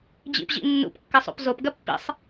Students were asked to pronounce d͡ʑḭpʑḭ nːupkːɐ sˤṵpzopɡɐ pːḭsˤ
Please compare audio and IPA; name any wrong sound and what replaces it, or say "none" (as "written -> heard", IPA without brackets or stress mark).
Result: u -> ṵ